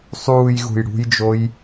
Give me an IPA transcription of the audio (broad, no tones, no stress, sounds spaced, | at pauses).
sˤ uː j ɣ ṳ j ɽ ṳ j d͡ʒ o j